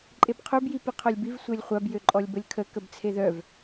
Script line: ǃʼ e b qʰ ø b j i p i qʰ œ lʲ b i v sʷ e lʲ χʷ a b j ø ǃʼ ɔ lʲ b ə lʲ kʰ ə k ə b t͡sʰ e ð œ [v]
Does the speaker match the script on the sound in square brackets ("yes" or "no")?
yes